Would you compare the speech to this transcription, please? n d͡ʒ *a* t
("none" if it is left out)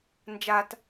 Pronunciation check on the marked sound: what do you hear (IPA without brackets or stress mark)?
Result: a